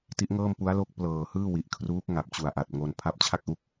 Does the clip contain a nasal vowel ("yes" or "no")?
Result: no